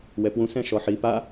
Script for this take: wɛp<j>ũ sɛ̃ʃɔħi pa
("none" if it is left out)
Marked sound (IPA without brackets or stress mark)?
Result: w